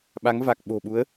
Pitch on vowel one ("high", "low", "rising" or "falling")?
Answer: rising